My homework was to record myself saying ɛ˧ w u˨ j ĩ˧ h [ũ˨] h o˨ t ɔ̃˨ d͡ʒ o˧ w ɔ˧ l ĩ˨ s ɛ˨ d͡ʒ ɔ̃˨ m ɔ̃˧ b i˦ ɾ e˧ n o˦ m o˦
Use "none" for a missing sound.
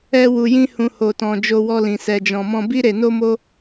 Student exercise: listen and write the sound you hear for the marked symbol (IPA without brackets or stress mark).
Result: ũ˨